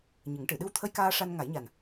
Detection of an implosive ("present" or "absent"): present